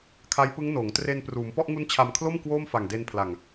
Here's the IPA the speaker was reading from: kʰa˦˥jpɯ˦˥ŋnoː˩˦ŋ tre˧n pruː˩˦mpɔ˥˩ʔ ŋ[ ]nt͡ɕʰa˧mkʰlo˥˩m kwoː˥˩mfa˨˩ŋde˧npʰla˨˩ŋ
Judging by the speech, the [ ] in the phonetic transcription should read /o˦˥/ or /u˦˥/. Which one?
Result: u˦˥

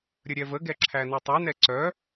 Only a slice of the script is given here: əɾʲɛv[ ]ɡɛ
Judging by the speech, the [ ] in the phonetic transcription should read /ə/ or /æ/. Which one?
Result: ə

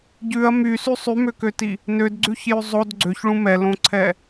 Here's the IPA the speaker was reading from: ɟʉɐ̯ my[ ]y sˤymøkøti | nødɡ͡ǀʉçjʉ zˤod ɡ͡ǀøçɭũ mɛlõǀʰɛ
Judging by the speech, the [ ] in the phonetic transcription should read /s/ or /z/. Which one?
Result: s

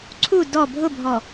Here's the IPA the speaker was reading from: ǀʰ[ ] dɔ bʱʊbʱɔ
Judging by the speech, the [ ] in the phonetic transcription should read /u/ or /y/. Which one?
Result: u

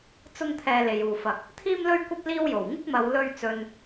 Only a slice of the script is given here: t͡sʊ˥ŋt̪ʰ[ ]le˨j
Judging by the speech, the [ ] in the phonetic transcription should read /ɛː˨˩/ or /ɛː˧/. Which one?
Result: ɛː˧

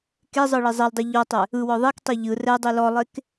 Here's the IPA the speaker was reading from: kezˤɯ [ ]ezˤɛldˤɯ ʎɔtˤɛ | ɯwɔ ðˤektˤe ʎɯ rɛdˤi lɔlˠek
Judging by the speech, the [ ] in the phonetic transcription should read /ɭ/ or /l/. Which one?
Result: ɭ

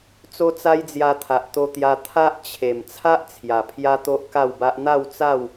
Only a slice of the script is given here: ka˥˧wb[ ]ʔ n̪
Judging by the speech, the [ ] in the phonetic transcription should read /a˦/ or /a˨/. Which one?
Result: a˦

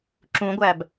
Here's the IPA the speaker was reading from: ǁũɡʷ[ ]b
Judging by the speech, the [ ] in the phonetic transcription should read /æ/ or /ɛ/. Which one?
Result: æ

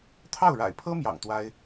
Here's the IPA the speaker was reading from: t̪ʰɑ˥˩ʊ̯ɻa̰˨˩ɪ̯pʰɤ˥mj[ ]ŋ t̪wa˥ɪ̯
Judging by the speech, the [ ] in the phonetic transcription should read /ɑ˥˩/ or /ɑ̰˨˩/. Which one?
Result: ɑ̰˨˩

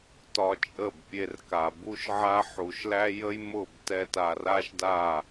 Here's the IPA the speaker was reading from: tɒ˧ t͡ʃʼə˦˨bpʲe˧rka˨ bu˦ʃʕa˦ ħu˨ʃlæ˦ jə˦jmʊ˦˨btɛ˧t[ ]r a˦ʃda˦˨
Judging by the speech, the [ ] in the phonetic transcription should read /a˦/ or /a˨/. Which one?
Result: a˨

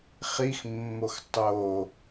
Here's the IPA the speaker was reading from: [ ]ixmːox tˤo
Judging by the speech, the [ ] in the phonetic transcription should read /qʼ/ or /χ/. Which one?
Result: χ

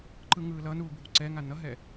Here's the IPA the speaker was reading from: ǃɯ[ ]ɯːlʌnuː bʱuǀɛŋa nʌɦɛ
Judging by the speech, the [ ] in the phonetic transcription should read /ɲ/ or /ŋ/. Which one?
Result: ŋ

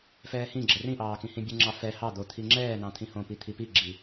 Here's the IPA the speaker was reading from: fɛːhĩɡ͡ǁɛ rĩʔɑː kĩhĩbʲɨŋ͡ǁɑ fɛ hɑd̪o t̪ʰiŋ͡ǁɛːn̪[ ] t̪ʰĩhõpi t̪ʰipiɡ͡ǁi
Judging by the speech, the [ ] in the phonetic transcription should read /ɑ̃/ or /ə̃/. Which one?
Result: ɑ̃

